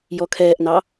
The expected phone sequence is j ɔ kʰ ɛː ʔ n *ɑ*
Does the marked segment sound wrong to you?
no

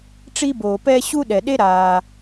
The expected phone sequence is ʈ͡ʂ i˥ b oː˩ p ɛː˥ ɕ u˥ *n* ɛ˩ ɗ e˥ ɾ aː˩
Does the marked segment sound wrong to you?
yes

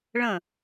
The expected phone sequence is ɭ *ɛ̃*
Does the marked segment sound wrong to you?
yes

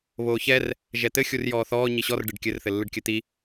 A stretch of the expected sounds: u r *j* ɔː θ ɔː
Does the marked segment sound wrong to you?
no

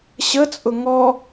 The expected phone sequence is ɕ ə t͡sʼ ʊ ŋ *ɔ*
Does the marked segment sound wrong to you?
no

